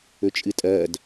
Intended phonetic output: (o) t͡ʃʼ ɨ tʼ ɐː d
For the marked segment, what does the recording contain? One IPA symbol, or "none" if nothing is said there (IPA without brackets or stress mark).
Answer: ɵ